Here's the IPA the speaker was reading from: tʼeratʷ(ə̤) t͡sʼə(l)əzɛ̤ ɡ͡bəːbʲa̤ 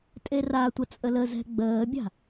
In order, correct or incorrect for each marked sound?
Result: incorrect: ə, correct

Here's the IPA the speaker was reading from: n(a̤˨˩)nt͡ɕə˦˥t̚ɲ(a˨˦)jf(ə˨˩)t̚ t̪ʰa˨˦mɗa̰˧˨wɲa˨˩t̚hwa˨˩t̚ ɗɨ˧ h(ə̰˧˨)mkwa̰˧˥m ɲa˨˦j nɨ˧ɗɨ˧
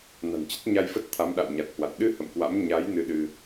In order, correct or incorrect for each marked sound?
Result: correct, incorrect: a˧, incorrect: ə˦˥, correct

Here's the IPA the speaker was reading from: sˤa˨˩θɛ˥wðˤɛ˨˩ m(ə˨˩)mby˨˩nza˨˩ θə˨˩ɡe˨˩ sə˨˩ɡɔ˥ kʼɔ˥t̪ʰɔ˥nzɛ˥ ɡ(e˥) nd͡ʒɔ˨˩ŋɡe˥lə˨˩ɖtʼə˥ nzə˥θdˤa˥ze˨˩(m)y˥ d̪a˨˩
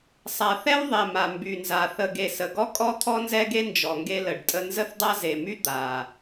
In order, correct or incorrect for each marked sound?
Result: incorrect: a˨˩, correct, correct

